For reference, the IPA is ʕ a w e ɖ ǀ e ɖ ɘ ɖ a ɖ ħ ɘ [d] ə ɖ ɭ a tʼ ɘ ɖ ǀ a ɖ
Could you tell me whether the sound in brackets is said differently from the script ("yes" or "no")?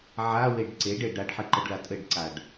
yes